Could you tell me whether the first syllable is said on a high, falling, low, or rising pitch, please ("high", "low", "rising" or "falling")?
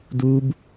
high